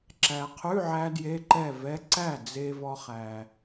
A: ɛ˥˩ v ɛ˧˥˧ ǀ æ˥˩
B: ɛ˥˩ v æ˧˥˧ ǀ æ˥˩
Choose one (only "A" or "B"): A